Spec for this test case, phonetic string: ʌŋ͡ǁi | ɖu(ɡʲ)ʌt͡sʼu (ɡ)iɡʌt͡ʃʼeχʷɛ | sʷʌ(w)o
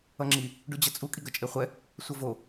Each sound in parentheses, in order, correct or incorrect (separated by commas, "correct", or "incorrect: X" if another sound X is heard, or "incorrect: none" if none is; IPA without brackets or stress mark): incorrect: d͡ʑ, incorrect: kʼ, incorrect: v